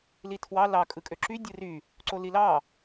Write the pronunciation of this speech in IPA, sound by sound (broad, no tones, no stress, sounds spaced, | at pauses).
l i tʰ w ɑ l ɑ kʼ ɯ kʼ ø ǁ y dʲ ɯ r y | ǀ o l i l ɑ